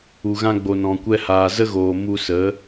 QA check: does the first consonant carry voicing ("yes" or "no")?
yes